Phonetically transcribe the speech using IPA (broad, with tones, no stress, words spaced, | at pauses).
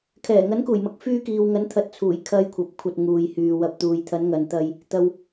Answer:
kʰɛː˨˩ŋɐ˨˥nkuː˨˩jmɐ˨˥k̚ fyː˧kiː˨wŋɐ˨˥n t̪ʰɐ˨˥t̚t͡sʰuː˨˩j kʰɐ˨j kʷʰɐ˨p̚kʷʰɐ˧t̚ ŋuː˨jhyː˨ wɐ˨p̚t̪uː˨jt̪ʰɐ˨˥n ŋɐ˨nt̪ɐ˧j | t̪ɐ˧w